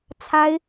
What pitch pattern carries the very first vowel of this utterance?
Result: high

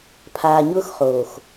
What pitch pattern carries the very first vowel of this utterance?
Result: low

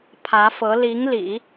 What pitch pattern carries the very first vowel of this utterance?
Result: rising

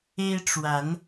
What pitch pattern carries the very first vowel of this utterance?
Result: high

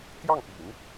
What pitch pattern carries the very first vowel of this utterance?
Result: falling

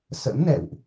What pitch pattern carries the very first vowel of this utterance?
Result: rising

